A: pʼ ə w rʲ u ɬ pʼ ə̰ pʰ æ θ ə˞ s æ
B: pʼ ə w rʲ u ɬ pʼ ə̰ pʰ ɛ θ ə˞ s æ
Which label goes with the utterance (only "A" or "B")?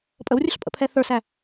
B